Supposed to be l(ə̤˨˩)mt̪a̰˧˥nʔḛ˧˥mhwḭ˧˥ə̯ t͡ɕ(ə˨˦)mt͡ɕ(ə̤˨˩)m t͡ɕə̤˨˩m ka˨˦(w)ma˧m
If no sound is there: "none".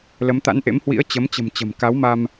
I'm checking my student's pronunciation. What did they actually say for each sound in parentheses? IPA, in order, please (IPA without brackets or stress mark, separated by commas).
ə˨˦, ə˨˦, ə̤˨˩, w